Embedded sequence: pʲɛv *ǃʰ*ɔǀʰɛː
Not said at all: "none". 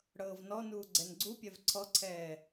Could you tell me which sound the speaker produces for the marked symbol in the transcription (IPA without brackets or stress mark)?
ǀʰ